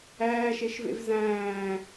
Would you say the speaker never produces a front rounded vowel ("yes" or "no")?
yes